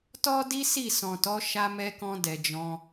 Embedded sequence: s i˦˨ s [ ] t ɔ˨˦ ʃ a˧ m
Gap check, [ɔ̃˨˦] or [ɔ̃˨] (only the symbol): ɔ̃˨